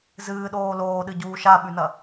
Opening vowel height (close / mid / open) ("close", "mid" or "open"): close